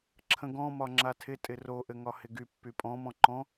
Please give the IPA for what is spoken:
ǁʰə̃ɡɔ̃ mɒŋ͡ǁatʰɪ tʼɪro ʔɘŋɒhɪɡy pːypʼɔ̃ mɔ̃ǃɔ̃

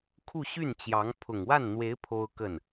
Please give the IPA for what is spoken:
kʰu˥˧ɕy˥˩nt͡ɕjɑ˧˥ŋ pʰʊ˨˩ŋwa˥˩nn̪we˧˥ɪ̯ pʰo˥ʊ̯kə˥˩n

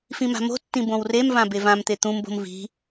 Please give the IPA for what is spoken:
fĩma̤mo̤tːĩ bõwremvã bevãmt̪e t̪ũmbo̤m vi̤

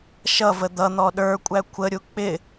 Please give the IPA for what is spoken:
ʃʌvə d̪ʌ n̪ɔɗə˞kʷʼæ kʷʰəɾʲu k͡pɪ

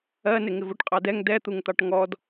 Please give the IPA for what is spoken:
ɜnɪ ŋɪvuʈqʼɑdɛŋ dɛt̪uŋt̪ɑʈ ŋɔd

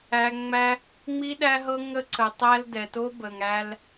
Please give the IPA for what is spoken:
æ˦ ŋ͡mæ˦ | ŋ͡mi˦ɗæ˦ɦɤ˦ ŋə˦ǀə˧tˤæ˦l dɛ˧to˦ bə˧ŋ æ˦l

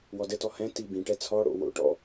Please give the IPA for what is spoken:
wɔdɘtɔ hɛ̃ tibĩʈɛ t͡sʰɔɽo̰ wo̰ʈɔ̰

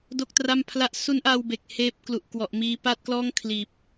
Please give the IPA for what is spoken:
do˥˩k̚tra˥˩mpʰla˥˩ʔ su˦˥nʔa˧w be˨˩k̚heː˦˥p̚klu˨˩ʔ kwɔ˨˩ʔmiː˧ pa˥˩t̚klɔː˥˩ŋ kʰliː˨˩p̚

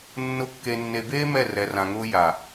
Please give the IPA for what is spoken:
nːʊ˦ kːe˨nːe˨beː˦ mɛ˦˨ rɛ˨rã˨ŋʊː˦ ja˨

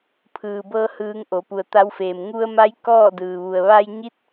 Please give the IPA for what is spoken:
pʰɯː˩bɤː˧ hɯː˧ŋʔo˩˧ pu˩ə̯t̪a˧˥wfeː˩m ŋu˧ə̯ma˧˥j kɔː˥˨dɯː˩ʋu˩ə̯ ʋa˧jɲi˧˥t̚

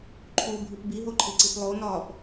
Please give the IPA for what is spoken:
ǃʰubʱip biɦoǃʰiǀip lˠonɒːp

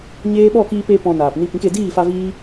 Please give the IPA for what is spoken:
ɲeː˦ ɓɔ˦˨kiː˧pe˧ pɔ̃˧naː˨p ni˧pĩ˨˦ke˧ diː˦˨fa˧ viː˦

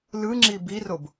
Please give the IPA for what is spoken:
lɯŋ͡ǁi birob

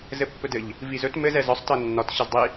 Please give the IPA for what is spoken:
zɘpːɵdɘʎ | vizɵt mɘz ɛzɒsˤ tɤnːɒt ɕɘzdˤi

